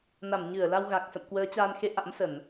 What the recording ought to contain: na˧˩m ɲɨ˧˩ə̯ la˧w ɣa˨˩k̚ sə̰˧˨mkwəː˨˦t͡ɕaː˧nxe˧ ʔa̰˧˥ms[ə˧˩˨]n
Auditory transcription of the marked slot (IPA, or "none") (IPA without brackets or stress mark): ə˧˩˨